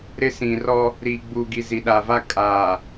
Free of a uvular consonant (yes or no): yes